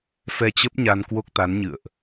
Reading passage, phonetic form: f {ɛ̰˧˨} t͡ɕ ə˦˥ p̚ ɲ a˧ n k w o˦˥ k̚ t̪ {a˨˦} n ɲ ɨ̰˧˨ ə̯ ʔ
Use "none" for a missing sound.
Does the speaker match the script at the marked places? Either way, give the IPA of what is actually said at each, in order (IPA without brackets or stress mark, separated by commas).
ɛ˧, a˨˦